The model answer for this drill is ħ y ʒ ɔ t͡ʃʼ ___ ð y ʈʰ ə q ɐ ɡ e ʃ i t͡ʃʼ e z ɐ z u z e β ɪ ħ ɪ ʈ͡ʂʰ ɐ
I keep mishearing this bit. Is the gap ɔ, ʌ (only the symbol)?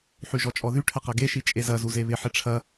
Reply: ɔ